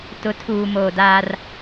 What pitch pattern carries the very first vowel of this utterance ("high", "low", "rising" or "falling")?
rising